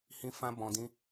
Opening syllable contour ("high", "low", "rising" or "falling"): high